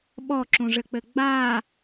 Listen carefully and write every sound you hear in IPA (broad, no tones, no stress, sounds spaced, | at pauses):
ɓ ɔ ǁ ũ ʐ ɘ k͡p ɘ ɡ͡b a